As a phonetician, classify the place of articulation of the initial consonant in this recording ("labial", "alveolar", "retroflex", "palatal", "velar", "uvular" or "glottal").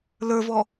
alveolar